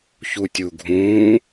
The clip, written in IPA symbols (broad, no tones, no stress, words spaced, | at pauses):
çutʲuɡʱũː